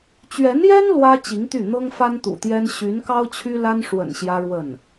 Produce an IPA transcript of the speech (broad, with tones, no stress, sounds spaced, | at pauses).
t͡ɕ ɥ ɛ˧˥ n j ɛ˥ n l w ä˥ t͡ɕ i˧˥ ŋ t̪ y˥˩ n̪ ɤ˥ ŋ f a˥ n t̪ ṵ˨˩ t̪ j ɛ˥ n ɕ y˧˥ n k ɑ˥ ʊ̯ t͡ɕʰ y˥ l a˥ n ʂ w ə̰˨˩ n ɕ j ä˥ ɻ w ə˥˩ n